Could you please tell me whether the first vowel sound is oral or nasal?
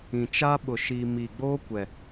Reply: nasal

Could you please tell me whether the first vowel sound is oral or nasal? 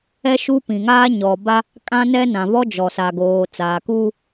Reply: oral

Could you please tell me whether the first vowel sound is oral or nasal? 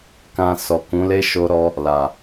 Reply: nasal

